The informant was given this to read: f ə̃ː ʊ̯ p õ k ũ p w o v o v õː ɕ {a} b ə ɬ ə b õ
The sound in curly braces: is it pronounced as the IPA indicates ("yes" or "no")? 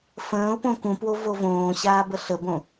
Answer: no